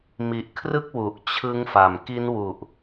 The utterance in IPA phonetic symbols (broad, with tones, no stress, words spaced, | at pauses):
mi˨˩ʔkʰrɯ˥˩k̚ wu˨˩ʔt͡ɕʰɯ˦˥ŋfa˨˩m ki˦˥nwu˨˩ʔ